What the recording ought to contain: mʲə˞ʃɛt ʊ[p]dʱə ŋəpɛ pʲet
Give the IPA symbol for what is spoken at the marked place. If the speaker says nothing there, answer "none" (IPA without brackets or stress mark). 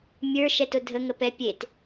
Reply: none